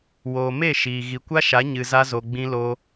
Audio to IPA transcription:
w oː˨ m e˦˨ ʃ iː˨ ɣ i˨ kʷ a˦ ʃ a˨˦ ɲ ɨ˨ z a˧ z o˨ ɡ͡b ĩ˧ l o˧

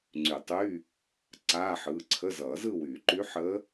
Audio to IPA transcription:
ŋ͡ǀ y˨˩˦ tˤ y˧˥˧ | ǀ aː˧˥˧ ħ ɯː˩˧˩ ǀʰ ə˧˥˧ z ʌː˨˩˦ z ɯ˥˧ w yː˨˩˦ ǃ y˧˥ ħ ə˧˥

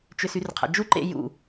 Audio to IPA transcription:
t͡ʃ ʏ s y r qʰ a̰ d͡ʒ u ǃ ḛ j ṵ

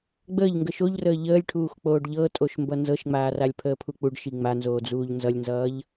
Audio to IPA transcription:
ɡ͡b əː ʎ ŋ ɡ ə ʃ o ʎ r əː ʎ əː lʲ ʈʰ uː x k͡p oː ɖ ʎ ɤ tʼ o ʃ m b ʌ n z ɤ ʃ ŋ͡m aː r a lʲ pʰ əː pʰ u k͡p u ɖ ʃ i ŋ͡m a n z oː d͡z uː ʎ n z ʌ lʲ n z ʌː ʎ

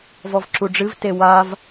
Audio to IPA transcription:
v ɔ v ǁ u ɖ͡ʐ ɨ v t e w a v

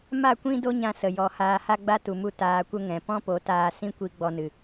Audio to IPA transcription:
m a˦˨ kʷ ĩ˦ d o˦ ɲ ã˧ s ə˨ j ɔ˧ h aː˧ h a˦ ɡ͡b a˦ t u˨ m u˧ t aː˧ kʷ ə˦ ŋ ɛ̃˨ p ɔ̃˦ p o˨˦ t aː˧ s ĩ˦ kʷ i˧ ɡ͡b ɔ˧ n ɨ˨

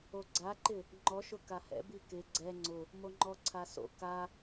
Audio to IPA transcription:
o ɡ͡ǀ a ǃ ɪ | ŋ͡ǃ ɔ ʃ ʊ k a h ɛ̰ b i k ɪ ɡ͡ǀ ɛ ŋ͡ǀ ʊ | m o ŋ͡ǃ ɔ ǀʰ a s o̰ k a

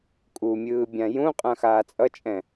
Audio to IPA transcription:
kʼ u mʲ ɯː bʲ ã j ũ qʼ ã x aː t͡sʼ ʌ t͡ʃʼ ɛ̃

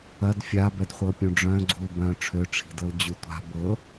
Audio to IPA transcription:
ɐ d fʲ a b ɛ d χʷ ɤ pʲ ũ ɖ͡ʐ œ̃ ɡ͡ǀ u l b œ̃ ʈ͡ʂʰ ø ʈ͡ʂʰ i̤ d ɤ l d͡ʑ u tʷ a̤ b ɤ

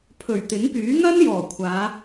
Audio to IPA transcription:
pʰ ɵ˨˩ ɥ t̪ ɪ˨˥ ŋ p yː˨˥ ŋ ɐ˥ n j ɔː˨˩ kʷʰ aː˨˧

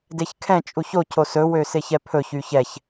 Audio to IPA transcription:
d e ç kʰ ɛ̃ t͡ʃʼ u ç o cʰ o s ɵ w ø s e ç ɛ pʰ ɵ ç y ç ɛ ç

